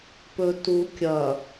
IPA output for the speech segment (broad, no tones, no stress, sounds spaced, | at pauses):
p ɵ t u kʲ ɐ